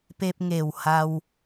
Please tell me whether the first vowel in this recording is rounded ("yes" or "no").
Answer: no